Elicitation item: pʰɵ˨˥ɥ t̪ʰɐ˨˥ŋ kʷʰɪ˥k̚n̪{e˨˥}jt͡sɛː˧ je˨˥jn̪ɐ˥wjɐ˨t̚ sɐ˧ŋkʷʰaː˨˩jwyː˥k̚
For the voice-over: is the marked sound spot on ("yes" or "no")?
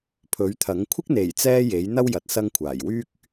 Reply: no